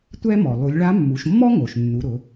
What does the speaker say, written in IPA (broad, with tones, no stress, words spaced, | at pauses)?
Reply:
tʷɛ˥mɔ˩ lˠu˩˧lʲɭa˧˥mːu˩˧ʃ mːɔ˥ŋo˩ʃnːu˩˧ ɾʊ˩˧